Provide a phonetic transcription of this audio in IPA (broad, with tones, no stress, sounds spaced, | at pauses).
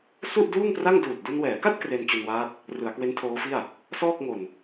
s u˥˩ ʔ d uː˥˩ ŋ p r a˥˩ ŋ d uː˨˩ t̚ d u˧ n w ɛː˩˦ k a˥˩ t̚ k r e˧ n t͡ɕ u˧ n w aː˦˥ t̚ | r ɯ˩˦ a̯ k w e˦˥ n tʰ oː˦˥ f i˥˩ a̯ | s ɔː˥˩ k̚ ŋ o˨˩ n